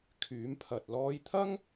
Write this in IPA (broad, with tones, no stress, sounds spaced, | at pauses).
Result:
kʰ yː˨˥ m pʰ ɐ˨ t̚ l ɔː˥ j t̪ʰ ɐ˥ ŋ